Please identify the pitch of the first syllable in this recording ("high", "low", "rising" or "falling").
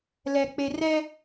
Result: low